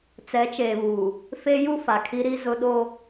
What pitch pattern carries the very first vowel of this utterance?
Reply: rising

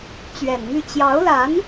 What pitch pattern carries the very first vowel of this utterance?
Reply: low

